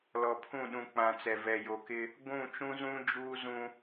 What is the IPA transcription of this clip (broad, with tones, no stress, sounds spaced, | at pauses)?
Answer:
l ɔ˨ pʰ ũ˦˨ ɗ ũ˨ k͡p ã˨ t͡s ɛ˨ v ɛ˨ j o˨ k ɪ˦ | ɡʷ ũ˦˨ t͡ʃ ũ˦ z ũ˦ d͡ʒ uː˦ z ũ˦